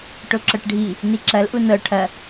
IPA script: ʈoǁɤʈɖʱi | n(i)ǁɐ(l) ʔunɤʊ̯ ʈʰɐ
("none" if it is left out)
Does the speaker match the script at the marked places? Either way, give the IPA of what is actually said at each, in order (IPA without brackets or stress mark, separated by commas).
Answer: i, l